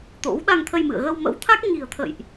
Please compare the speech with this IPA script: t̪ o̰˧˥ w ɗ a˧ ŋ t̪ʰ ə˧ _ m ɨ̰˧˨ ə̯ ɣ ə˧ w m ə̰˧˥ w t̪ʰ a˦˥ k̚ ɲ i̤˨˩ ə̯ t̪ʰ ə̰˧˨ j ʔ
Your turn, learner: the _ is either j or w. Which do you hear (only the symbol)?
j